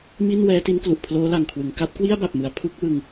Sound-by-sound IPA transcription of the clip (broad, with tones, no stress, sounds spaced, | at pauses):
m i˥˩ n w ɛː˦˥ t i˦˥ n k l u˨˩ ʔ pʰ l oː˦˥ l a˨˩ ŋ kʰ w ɯ˩˦ ŋ k a˦˥ t̚ k w i˥˩ a̯ b a˨˩ p̚ m ɯ˩˦ a̯ pʰ u˦˥ k̚ w ɯ˧ ŋ